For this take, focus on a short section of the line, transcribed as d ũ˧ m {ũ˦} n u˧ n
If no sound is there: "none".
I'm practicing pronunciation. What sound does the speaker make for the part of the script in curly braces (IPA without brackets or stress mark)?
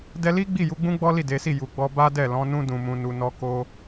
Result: ũ˧